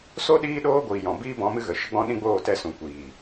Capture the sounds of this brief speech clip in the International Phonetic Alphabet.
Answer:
s o˦ ɗ iː˦ ɗ oː˦ ɡʷ iː˨ j ɔ̃˨ b iː˦ b ɔ̃˨˦ m ɨ˦ ɣ ə˨ ʃ ə˦ ɡ͡b ɔ̃˦ ɗ ĩ˦ ɡ͡b oː˦˨ t ɛ˦˨ s ũ˨ kʷ iː˨

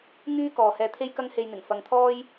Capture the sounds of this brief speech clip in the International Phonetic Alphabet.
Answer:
ŋ yː˥ k ɔː˨ h ɛː˧ t̪ʰ e˥ j k ɐ˥ ŋ h e˧ j n̪ ɪ˨˩ ŋ f ɐ˨ ŋ t̪ʰ ɔː˥ j

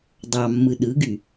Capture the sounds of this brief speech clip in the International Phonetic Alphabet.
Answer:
dˤ ɑ mː ɯ ɗ ɯ ɡ y

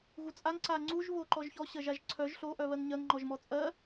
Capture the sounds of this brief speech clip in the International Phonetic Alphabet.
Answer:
ɣ u t͡sʼ a ŋ ǀ a ŋ͡ǀ u ʒ β o ǃ ɔ ʒ ç ɔ ɕ ɜ ʒ a ʒ ǀʰ œ ʒ ɬ o ʔ œ β ɜ ŋ ɲ ɜ ŋ ŋ͡ǃ ɔ ʒ m ɔ t͡sʼ ɜ

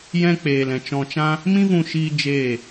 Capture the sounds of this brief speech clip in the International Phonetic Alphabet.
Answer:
j ɛ̃˦ k͡p eː˨ l ɛ̃˨ t͡ʃ ɔ̃˧ t͡ʃ ã˦ | m ĩ˦ v ũ˧ ʃ iː˦ d͡ʒ eː˦˨

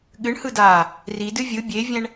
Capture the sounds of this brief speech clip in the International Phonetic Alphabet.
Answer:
ɠ ɨ ɳ h ɯ d aː | r i d ɨ vʲ ɯ bʲ e vʲ ɛ̃ ɳ

